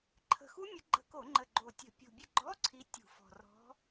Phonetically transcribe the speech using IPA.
ǃʰə̤˨˩xu˦˥mʲə˨˦ɡ͡ǃə̤˧˩˧ ko˧˩˧ŋ͡ǃə˨˩ ɡ͡ǃo˨˩tʲə̤˧˩˧ pʲṳ˨˩ bʲə˥˩ ɡ͡ǃɔ˧˥˧ ǀʰi˨˦ tʲṳ˧˩˧fɔ̤˨˩ rɔ̤˨˦

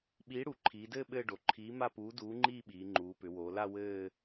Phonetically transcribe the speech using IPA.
ɓiː˨˥ɽu˩˧ǃʰiː˩˧dɘː˥˧ ɓɘː˥˧ɖo˩˧ ǃʰiː˨˥ ma˥˧puː˨˥ duː˨˥ŋ͡ǃiː˥˧ɓiː˩˧ ŋ͡ǃuː˩˧pʏ˩˧woː˩˧la˥˧ wɘː˥˧

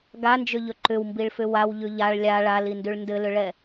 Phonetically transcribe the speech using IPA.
ɡand͡ʒʏʎɵ ǃʏwmbiɭfʏ wawʎʉ ʎaɭ lʲa ɭalindʉɭ ndɘlʏɭɛ

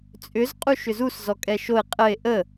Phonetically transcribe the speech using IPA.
t͡sʼʏz qʼuʃʏzus zɔkʼɛʃoe̯ qʼəe̯ ʔə

